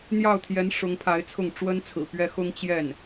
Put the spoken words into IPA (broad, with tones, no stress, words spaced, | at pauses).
n̪jɑ˥˩ʊ̯t̪ʰjɛ˧˥n ʂʊ˧˥ŋpʰa˧˥ɪ̯t͡sʰʊ˥˩ŋ ʈ͡ʂwə˥nt͡sʰɹ̩˨˩pɥɛ˥ xʊ˥ŋt͡ɕjɛ˥˩n